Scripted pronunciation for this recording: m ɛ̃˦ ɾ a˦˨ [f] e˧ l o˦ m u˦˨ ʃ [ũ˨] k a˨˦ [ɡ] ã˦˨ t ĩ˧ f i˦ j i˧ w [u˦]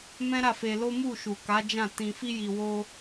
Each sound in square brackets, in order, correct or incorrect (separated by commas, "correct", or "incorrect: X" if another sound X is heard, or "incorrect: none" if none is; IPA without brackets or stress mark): correct, incorrect: u˨, incorrect: d͡ʒ, incorrect: o˦